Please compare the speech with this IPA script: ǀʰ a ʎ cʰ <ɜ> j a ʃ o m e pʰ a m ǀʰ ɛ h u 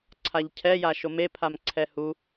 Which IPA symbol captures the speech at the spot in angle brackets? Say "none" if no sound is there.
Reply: ɛ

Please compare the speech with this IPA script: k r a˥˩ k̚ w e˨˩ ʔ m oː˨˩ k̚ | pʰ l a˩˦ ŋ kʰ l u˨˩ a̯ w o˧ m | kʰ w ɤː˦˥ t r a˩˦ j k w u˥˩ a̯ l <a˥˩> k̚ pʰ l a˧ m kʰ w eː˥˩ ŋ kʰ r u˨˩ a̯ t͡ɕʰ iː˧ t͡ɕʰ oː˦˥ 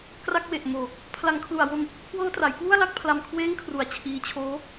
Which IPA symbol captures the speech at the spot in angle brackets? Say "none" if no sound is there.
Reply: a˥˩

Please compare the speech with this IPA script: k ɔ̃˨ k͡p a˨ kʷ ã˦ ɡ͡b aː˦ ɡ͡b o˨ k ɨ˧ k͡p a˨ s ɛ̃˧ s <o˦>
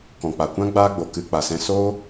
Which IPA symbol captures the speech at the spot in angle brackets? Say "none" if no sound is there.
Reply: o˦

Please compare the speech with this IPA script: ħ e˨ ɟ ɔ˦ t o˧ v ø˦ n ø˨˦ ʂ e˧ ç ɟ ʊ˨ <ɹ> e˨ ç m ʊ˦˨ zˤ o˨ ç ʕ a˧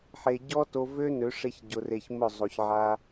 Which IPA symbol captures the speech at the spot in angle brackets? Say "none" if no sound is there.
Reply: r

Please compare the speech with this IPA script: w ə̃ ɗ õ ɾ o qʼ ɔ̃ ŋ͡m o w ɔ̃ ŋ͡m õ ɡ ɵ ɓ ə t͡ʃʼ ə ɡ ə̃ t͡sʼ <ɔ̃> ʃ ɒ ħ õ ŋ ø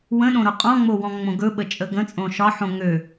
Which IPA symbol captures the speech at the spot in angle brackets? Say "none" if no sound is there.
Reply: õ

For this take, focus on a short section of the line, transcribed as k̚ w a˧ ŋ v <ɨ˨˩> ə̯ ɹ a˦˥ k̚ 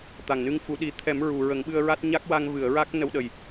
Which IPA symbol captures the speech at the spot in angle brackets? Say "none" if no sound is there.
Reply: ɨ˨˩˨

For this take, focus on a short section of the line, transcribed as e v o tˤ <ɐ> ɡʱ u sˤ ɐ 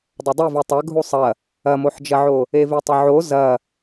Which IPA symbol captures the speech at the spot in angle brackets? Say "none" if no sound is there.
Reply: ɐ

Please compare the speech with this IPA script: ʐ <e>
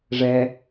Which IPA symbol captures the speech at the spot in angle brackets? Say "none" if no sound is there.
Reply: ɛ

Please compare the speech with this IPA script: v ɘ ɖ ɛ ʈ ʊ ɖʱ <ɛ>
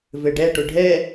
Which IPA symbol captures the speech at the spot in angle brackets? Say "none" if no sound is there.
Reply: ɛ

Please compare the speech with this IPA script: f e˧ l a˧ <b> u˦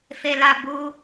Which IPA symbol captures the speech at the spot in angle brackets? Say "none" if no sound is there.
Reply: b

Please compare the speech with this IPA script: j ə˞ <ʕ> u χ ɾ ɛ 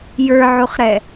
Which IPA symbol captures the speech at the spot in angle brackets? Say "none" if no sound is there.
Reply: ʕ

